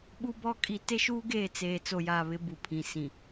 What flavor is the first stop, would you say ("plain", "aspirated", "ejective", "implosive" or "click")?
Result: implosive